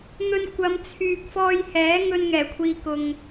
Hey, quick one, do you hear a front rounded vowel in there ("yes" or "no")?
yes